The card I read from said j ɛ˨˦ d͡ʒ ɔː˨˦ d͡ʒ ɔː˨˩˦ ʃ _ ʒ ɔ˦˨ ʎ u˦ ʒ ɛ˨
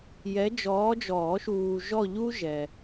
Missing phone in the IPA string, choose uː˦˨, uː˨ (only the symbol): uː˨